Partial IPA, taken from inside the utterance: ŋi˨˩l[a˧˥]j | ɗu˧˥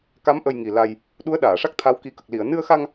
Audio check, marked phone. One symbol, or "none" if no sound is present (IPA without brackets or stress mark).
a˧